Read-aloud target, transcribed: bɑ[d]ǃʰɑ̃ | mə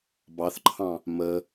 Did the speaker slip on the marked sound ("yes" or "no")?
yes